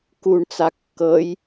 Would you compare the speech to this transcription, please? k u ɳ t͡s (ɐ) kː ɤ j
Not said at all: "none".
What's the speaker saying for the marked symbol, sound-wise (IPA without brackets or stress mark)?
a